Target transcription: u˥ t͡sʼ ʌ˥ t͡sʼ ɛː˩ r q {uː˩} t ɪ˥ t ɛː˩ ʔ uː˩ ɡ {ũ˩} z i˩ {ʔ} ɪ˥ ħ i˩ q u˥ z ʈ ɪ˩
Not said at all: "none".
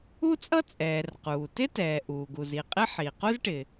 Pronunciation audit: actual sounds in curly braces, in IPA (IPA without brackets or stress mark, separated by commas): uː˩, u˩, qʼ